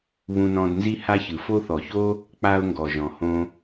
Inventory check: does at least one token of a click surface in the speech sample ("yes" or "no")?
no